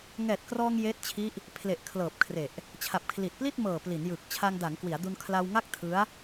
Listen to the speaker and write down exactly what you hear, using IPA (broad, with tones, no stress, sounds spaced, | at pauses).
ŋ ɛː˨˩ t̚ k r ɔː˧ ŋ j eː˦˥ t̚ t͡ɕʰ i˦˥ ʔ | pʰ l e˨˩ ʔ kʰ l ɤː˨˩ p̚ kʰ r e˨˩ ʔ | t͡ɕʰ a˨˩ p̚ kʰ l i˨˩ t̚ p l i˥˩ t̚ m ɤː˨˩ p l i˩˦ n j ɯ˨˩ k̚ t͡ɕʰ a˧ ŋ d a˩˦ ŋ k w i˩˦ a̯ d u˧ n kʰ l a˧ w ŋ a˥˩ k̚ tʰ ɯ˦˥ a̯